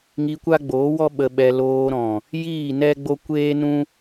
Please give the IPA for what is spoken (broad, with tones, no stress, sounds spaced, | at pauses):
ŋ i˧ kʷ a˦ ɡ͡b oː˨˦ w ɔ˦ ɓ ə˧ ɓ ɛ˧ l oː˧ ɾ ɔ̃˨ | j iː˦˨ n ɛ˦ ɡ͡b o˦ kʷ eː˦ n ũ˦